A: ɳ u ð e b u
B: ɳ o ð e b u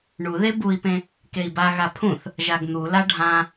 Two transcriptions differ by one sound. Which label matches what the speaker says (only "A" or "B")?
A